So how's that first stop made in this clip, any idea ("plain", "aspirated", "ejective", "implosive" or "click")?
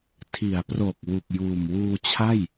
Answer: aspirated